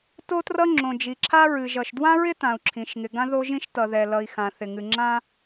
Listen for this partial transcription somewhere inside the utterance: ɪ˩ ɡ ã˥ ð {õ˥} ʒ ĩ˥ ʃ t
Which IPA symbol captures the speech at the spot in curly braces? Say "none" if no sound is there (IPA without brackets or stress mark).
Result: o˥